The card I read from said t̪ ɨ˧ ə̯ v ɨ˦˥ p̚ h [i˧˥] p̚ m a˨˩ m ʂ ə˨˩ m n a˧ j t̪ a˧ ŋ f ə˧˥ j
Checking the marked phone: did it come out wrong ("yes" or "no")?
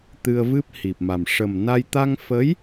yes